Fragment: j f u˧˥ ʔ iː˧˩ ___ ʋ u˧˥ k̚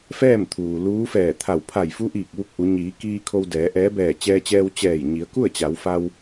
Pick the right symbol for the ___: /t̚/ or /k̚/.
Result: k̚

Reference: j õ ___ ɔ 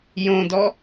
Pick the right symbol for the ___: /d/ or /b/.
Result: d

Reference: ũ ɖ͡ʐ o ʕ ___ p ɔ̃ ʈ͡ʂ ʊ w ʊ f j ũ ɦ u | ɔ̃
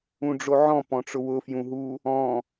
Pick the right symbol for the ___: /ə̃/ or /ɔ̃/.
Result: ɔ̃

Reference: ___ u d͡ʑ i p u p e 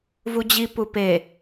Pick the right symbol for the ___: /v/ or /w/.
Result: v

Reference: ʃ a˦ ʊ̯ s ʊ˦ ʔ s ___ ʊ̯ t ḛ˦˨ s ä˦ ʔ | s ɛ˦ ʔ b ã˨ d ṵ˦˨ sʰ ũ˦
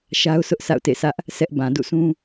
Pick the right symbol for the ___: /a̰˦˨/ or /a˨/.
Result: a̰˦˨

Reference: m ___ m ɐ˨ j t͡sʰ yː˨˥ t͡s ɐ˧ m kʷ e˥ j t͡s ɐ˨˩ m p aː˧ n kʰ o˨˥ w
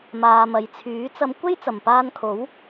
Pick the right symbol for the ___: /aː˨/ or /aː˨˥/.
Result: aː˨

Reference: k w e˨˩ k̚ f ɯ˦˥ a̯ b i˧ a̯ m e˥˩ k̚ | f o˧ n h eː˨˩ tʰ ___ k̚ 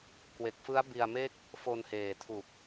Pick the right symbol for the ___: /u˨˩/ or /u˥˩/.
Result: u˨˩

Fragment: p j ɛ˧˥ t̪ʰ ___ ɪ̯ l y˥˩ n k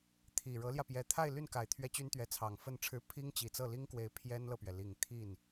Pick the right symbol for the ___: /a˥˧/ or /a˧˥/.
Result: a˥˧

